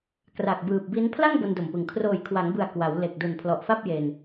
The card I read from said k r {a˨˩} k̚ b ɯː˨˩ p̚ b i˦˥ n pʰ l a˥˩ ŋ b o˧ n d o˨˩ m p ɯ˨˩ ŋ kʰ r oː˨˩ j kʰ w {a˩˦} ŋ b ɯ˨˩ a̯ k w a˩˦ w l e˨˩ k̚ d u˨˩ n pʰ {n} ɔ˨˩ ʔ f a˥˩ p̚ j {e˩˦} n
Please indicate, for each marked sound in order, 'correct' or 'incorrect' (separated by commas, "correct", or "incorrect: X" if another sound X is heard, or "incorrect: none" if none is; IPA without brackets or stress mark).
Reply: correct, correct, incorrect: l, incorrect: e˧